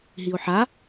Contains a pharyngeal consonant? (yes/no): yes